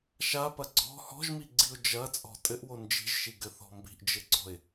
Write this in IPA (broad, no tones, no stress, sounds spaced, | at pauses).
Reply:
ʃ a p ɐ ɡ͡ǀ ɔ̤ h ɔ̤ ʒ m i ɡ͡ǀ i ʊ̯ d͡ʒ ɐ t͡sʼ ɔ̤ tʼ ɘ ʔ w o n d͡ʒ i̤ ʒ ʃ i ɡ ɘ θ ɔ̤ m b i̤ ʔ d͡ʒ ɘ ɡ͡ǀ ɔ̤ ɪ̯